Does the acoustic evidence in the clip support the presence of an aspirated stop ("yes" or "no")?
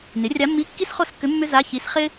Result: no